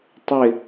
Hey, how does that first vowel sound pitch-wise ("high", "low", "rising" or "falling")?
falling